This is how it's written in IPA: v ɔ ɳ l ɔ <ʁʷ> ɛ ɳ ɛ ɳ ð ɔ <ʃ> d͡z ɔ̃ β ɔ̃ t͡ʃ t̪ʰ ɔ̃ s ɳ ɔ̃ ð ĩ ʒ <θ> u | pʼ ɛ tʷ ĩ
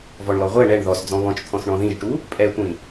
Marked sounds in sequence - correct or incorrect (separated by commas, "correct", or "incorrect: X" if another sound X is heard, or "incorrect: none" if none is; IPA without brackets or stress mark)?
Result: correct, incorrect: s, incorrect: ʈ